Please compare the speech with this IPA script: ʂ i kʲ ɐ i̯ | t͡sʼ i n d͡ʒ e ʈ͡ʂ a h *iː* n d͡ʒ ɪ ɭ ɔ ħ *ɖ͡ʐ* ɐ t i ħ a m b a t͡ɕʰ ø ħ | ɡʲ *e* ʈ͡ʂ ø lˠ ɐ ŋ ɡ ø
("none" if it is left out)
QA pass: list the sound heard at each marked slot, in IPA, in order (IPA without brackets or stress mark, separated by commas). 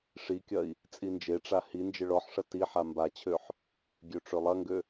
i, ʂ, ø